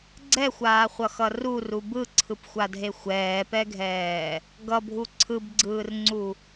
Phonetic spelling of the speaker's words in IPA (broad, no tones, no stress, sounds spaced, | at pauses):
ɡ͡ǀ ɛ xʷ aː χʷ ʌ x ʌ r u r u b ɯ ǀʰ ɯ p xʷ a dʱ e xʷ ɛː p ɛ ɡʱ ɛː | ɡ ʌ bʱ u ǀʰ ɯ b ɡ͡ǀ ɯː r ŋ͡ǀ u